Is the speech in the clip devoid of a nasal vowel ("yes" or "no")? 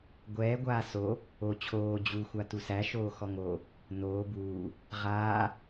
yes